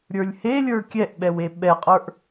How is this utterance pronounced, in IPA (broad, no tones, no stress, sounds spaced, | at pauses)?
ɾʲ ə˞ lʲ h e lʲ ə˞ kʲ ɛ ʔ ɓ ɛ w e ɓ ɛ qʼ ə˞ ʔ